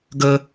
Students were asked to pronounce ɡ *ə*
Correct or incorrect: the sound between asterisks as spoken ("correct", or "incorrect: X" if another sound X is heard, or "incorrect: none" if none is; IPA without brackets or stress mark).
correct